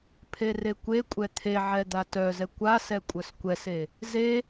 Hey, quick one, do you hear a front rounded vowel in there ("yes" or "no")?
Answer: yes